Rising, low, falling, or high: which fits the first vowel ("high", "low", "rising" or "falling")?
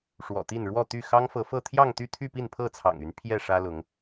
low